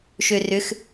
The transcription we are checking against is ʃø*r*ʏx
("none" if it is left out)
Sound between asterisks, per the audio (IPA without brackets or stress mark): r